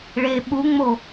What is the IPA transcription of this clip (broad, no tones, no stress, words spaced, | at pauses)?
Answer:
ɭe ɓuŋ͡mo